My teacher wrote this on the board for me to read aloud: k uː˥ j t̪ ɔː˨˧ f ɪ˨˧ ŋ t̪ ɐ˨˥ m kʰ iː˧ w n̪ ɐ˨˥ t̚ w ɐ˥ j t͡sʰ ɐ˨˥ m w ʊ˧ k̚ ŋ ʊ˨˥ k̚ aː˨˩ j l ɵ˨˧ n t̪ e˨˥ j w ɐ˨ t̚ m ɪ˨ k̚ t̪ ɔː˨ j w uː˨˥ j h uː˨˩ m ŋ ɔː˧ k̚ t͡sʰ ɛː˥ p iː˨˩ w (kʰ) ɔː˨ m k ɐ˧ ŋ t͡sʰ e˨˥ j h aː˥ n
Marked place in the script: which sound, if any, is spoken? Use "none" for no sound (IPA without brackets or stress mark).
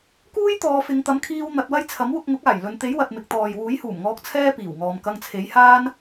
ŋ